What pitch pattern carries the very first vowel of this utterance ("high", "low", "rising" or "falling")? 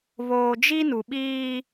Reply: low